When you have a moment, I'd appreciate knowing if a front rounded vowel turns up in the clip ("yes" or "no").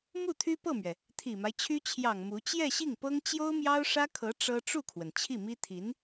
yes